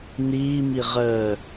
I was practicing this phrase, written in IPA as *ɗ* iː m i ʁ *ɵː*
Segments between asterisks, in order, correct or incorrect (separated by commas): incorrect, incorrect